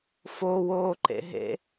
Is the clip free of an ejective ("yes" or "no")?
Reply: yes